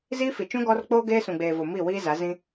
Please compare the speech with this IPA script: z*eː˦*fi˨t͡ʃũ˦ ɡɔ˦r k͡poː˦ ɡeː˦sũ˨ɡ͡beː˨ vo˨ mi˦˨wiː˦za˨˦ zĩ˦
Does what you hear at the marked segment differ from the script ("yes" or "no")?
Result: yes